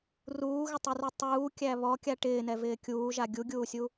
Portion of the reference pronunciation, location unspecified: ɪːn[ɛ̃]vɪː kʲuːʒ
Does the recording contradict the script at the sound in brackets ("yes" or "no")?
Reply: yes